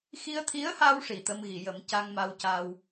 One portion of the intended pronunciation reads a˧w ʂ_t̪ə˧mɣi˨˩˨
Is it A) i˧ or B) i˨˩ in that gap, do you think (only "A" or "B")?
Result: B